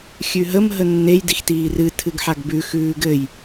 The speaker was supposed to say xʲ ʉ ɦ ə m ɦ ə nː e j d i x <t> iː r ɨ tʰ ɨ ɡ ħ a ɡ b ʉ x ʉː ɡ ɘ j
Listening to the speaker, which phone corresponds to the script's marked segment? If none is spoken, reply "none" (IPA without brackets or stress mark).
t